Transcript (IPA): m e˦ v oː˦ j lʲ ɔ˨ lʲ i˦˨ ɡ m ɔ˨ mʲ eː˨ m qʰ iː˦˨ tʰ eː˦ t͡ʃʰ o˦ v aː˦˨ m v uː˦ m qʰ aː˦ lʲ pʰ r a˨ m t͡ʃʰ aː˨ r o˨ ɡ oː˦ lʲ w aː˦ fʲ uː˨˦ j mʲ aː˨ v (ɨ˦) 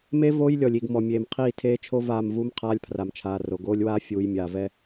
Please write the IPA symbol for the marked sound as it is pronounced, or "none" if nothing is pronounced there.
ɛ˦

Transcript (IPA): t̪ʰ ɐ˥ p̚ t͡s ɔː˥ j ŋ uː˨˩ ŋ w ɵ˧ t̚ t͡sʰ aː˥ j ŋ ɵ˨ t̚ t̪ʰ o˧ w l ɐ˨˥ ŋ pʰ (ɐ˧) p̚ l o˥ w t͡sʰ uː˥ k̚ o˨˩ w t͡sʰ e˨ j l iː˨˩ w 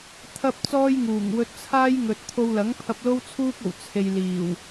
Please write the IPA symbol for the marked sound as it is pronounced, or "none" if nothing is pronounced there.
ɐ˧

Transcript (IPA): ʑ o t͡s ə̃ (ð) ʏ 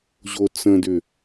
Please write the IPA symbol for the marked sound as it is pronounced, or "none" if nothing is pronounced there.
d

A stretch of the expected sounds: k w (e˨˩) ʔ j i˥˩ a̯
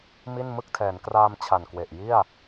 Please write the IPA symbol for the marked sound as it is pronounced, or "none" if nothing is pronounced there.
e˨˩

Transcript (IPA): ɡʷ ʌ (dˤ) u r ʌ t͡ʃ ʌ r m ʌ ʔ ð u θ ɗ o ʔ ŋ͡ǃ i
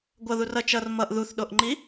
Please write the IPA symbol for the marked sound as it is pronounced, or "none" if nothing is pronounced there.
ð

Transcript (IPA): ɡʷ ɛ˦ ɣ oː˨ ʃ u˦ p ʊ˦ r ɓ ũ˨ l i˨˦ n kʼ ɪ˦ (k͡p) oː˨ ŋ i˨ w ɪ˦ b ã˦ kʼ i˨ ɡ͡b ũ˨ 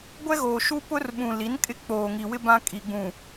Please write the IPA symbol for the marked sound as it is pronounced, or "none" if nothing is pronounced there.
k͡p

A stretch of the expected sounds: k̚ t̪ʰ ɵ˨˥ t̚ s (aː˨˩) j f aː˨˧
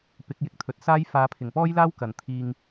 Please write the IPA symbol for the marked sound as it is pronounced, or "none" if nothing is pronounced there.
aː˥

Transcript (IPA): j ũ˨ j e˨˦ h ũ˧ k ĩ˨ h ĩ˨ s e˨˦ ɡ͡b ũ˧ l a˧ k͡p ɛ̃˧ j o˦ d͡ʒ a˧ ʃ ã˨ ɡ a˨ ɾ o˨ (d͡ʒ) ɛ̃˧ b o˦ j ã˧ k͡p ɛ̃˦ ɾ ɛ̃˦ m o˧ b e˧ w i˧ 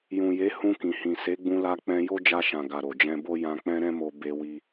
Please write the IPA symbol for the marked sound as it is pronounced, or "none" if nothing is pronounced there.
d͡ʒ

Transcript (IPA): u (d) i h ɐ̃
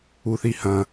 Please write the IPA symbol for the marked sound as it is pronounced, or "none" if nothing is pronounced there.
θ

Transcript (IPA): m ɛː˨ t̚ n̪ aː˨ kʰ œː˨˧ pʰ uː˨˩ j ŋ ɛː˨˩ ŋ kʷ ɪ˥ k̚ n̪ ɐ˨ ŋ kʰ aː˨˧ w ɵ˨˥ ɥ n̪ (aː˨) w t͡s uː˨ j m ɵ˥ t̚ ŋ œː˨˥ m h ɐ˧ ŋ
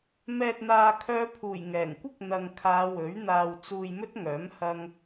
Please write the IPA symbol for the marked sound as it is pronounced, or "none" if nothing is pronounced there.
aː˨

